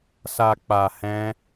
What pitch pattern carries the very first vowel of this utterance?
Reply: low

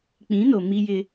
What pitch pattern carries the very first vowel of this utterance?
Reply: rising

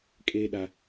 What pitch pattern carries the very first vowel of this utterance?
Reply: low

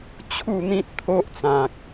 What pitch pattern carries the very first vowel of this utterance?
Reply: falling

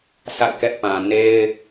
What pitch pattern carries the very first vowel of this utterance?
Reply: falling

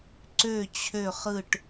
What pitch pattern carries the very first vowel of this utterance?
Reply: falling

